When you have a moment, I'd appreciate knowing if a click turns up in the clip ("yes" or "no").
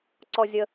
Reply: yes